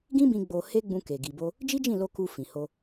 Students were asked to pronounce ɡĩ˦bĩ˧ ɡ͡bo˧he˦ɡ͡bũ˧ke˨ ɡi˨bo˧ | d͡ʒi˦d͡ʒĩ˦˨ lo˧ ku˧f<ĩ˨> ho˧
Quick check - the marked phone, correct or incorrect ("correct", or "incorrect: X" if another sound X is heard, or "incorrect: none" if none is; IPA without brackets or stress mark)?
correct